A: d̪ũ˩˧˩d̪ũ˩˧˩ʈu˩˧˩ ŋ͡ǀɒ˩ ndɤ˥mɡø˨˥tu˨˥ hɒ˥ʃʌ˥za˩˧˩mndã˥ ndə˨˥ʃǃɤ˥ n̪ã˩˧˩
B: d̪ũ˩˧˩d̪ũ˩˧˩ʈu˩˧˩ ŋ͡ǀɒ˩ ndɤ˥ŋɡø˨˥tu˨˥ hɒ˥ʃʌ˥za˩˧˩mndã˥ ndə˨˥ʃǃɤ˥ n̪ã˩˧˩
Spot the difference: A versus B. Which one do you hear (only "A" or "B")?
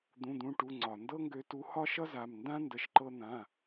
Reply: B